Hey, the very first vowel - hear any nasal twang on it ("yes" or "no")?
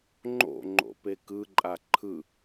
no